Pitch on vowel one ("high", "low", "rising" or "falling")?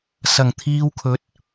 low